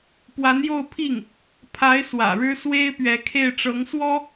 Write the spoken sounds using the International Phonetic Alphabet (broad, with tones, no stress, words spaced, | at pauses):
pwa˧˥njo˥˧ʊ̯pʰi˥˩ŋ | pʰa˧˥ɪ̯ swä̰˨˩ɻɻ̩˥ swe˥ɪ̯pɥɛ˧˥kʰe˥˩ɪ̯ ʈ͡ʂɤ˧˥ŋswɔ˥